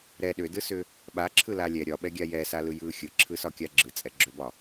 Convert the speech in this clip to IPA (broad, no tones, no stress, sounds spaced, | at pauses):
ɾ ɛ ɗ ʏ d ɯ s ʏ | ɓ a ǁʰ ɯ l a lʲ ɛ ɾʲ ɒ ɓ ɛ ɡʲ a j ɛ s a l ɯ j ɯ xʲ ɯ ǁʰ ɯ s ɒ kʲ a ɡ͡ǁ ɯ t͡sʼ ɛ ɡ͡ǁ ø b ɒ